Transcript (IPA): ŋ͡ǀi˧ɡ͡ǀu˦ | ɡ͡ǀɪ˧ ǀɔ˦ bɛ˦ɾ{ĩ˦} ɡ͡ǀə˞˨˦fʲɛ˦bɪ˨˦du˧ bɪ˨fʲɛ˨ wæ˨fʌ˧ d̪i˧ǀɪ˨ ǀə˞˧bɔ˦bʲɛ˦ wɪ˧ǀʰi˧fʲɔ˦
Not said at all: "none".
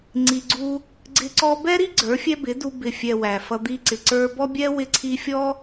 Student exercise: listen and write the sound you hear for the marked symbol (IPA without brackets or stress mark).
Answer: i˦